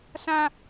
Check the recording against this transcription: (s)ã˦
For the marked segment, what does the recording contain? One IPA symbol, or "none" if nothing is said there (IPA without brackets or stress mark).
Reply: s